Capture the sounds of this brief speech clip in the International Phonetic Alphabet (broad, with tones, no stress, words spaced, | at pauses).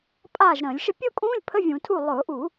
pʼaː˥˩ʒ ɾə̃ː˧˩˧lʲʃə˥˧ pʲʊː˥˧kʼũː˧˥˧lʲpʰə˧˥˧ vʲũ˧˩˧tʰu˥˩ lˠʊː˧˩˧ʔu˧˩˧